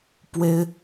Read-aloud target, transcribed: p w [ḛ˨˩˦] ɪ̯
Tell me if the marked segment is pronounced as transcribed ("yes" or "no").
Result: no